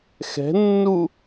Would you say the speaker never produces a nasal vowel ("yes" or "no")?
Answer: yes